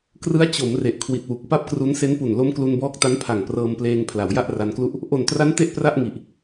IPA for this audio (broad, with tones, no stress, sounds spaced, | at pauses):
k r ɯ˦˥ a̯ t͡ɕ o˩˦ m r e˨˩ ʔ kʰ w i˨˩ t̚ w u˨˩ k̚ p a˥˩ p̚ k r u˦˥ n s e˦˥ n p u˨˩ n l o˦˥ m k l u˧ n b ɔː˦˥ k̚ t a˦˥ n pʰ a˨˩ ŋ p r ɤː˧ m p l eː˧ ŋ pʰ l a˩˦ w j a˥˩ ʔ r a˧ n k l u˥˩ ʔ | ʔ o˨˩ n t r a˦˥ n t e˥˩ ʔ p r a˥˩ ʔ ŋ i˨˩ ʔ